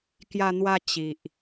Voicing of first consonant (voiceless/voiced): voiceless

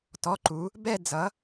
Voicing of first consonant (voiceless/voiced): voiceless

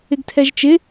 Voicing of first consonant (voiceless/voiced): voiced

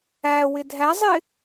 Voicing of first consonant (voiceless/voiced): voiced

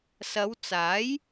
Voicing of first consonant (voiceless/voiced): voiceless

